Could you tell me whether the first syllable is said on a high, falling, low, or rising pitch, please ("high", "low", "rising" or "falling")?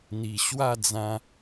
low